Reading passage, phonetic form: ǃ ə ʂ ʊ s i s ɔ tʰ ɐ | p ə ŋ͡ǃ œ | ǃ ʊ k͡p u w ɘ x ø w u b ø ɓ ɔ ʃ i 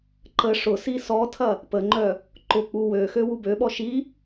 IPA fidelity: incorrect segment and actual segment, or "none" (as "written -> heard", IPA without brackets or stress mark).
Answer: ɘ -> ø